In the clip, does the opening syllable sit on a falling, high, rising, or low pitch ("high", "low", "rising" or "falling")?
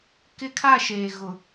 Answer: high